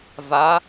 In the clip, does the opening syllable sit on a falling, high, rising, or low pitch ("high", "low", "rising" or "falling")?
rising